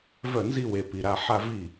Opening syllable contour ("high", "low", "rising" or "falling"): falling